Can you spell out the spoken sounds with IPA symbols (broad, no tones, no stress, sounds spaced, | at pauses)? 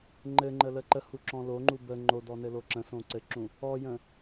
ŋ͡ǃ ɘ ŋ͡ǃ ə l ə ǃ ə h u ǁ ɔ̃ l o ŋ͡ǃ u b ə ŋ͡ǃ o d ɔ n ɘ l o ǁ ə̃ s õ ǀ ɘ ǁ ũ | ɔ j ə̃